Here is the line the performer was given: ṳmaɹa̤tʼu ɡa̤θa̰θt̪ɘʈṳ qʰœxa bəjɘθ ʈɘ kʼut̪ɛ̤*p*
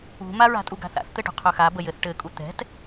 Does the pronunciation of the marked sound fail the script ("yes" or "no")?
yes